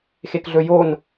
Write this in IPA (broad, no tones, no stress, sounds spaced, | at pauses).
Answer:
x e k ɮ ɵ j o n